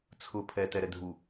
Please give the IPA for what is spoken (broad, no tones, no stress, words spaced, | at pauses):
t͡sʰʊ pʰɛtɛɾɛdʱu